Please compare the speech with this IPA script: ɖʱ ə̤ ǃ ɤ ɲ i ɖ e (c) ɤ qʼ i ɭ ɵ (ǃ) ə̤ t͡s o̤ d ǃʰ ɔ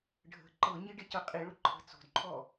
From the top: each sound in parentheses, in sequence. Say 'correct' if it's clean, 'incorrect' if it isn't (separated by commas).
correct, incorrect